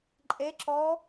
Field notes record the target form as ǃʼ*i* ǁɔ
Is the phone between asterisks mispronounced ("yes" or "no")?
yes